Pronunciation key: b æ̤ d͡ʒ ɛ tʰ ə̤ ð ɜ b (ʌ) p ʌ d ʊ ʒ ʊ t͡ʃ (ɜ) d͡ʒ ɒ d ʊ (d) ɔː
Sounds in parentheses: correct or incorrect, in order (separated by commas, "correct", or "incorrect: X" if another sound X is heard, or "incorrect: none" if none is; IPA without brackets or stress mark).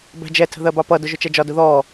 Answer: incorrect: ɑ, incorrect: ɛ, incorrect: ð